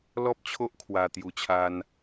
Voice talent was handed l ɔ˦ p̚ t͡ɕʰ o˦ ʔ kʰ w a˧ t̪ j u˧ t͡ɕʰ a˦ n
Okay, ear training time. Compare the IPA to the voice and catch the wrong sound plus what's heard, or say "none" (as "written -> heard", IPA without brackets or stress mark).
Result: none